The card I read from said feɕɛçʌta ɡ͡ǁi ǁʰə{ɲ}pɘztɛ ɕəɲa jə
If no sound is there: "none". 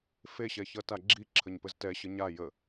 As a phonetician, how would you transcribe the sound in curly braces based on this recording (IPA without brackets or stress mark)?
ɲ